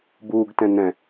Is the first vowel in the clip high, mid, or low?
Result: high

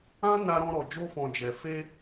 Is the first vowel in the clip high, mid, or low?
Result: low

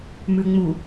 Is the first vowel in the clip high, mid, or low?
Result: high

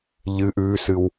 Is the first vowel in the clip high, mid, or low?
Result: high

